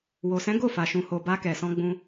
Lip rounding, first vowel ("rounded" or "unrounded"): rounded